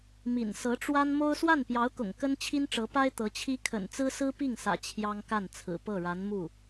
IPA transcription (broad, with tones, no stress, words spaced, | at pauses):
mḭ˨˩n sɤ˧˥ʈ͡ʂwa˥n mo˥ʊ̯ swa˥˩npjɑ˧˥ʊ̯kʊ̰˨˩ŋ kə˥nt͡ɕʰi˥nʈ͡ʂɤ˧˥pa˥ɪ̯ t̪ɤ˧˥t͡ɕʰi˥ kʰə̰˨˩nt͡sɹ̩˥sɹ̩˥pi˥˩ŋ sä̰˨˩ t͡ɕʰjɑ˥ŋka˥˩nt͡sʰɹ̩˨˩ pɤ˥˩ɻa˧˥nmu˥˩